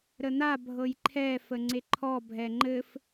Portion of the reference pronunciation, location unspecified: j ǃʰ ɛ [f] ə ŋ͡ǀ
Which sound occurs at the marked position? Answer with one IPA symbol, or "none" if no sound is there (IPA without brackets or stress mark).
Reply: f